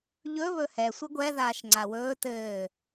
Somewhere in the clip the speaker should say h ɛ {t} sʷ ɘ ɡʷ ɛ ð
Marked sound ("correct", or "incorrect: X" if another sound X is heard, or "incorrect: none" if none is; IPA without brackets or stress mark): incorrect: none